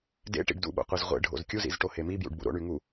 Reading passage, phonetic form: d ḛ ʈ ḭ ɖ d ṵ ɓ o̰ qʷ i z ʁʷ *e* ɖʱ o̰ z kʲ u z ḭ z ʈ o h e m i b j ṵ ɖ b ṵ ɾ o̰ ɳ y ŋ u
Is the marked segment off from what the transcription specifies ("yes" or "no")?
yes